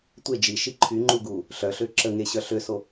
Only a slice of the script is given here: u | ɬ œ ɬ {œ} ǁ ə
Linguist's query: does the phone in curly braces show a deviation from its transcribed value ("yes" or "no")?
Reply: yes